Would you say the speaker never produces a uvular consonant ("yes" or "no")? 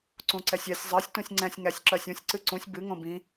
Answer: yes